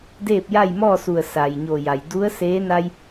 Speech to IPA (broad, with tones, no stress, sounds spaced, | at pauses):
d eː˥˨ p̚ j a˥˨ j m ɔː˥˨ s u˧˩ ə̯ s a˩ j ɲ o˧˩ j a˩ j d u˧˥ ə̯ s eː˧˥ n a˧ j